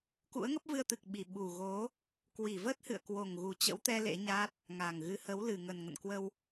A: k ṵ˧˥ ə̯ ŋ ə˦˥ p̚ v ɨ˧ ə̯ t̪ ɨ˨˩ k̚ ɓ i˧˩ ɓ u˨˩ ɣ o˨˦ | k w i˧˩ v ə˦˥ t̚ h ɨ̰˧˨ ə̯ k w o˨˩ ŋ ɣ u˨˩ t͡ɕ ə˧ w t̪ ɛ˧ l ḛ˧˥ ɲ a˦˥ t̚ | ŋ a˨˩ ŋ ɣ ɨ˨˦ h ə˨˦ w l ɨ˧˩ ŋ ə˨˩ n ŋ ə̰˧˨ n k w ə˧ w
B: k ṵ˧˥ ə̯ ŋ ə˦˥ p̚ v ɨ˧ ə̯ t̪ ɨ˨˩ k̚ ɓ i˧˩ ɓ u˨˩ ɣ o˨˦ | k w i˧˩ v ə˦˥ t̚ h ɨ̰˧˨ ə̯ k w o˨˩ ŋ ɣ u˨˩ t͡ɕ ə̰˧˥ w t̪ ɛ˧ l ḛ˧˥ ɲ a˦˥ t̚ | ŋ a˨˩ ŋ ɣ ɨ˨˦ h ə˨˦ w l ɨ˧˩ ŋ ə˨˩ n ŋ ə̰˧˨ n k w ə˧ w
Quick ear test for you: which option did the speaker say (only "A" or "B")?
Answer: B